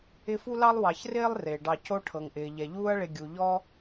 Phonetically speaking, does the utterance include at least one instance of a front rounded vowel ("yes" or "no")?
no